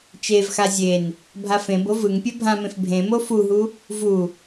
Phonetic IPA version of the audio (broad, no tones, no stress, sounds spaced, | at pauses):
t͡ʃ e v x a zʲ e n | bʱ a f ẽ b o v ɯ ŋ pʲ ɛ bʱ ã m ẽ f bʱ ẽ m o f u ɦ u | v u